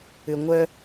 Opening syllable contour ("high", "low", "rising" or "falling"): low